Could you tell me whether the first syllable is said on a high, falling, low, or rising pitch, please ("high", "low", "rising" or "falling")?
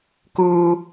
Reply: low